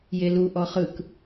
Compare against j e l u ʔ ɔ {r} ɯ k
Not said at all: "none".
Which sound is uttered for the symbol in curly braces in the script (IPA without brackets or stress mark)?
χ